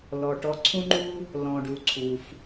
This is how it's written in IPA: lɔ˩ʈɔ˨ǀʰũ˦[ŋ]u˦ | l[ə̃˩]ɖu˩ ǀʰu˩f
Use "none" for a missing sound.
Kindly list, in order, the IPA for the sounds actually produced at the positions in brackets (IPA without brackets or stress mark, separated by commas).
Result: ŋ͡ǃ, ɔ̃˩